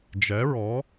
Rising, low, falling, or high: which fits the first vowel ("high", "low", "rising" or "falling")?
rising